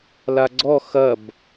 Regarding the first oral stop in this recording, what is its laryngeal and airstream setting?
click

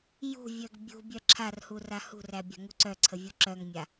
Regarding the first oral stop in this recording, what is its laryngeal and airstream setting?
plain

